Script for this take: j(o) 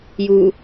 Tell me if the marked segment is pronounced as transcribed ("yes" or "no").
no